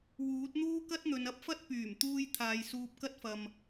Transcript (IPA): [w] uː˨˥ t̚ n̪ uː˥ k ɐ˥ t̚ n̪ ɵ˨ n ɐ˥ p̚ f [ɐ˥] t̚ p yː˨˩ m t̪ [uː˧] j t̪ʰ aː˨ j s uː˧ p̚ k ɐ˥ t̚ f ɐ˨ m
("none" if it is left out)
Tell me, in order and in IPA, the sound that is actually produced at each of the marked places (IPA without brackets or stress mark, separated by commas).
w, ɐ˥, uː˧